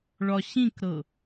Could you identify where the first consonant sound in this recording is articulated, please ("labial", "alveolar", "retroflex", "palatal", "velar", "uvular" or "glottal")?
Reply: retroflex